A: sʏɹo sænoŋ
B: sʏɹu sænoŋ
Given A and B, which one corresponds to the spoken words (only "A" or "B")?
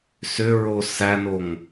A